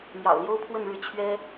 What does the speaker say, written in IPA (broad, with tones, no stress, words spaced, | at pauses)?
mjɑ̰˨˩ʊ̯ljo˦ʊ̯pʰwə˥˨nɻɻ̩˥˨ t͡ɕʰɥɛ˦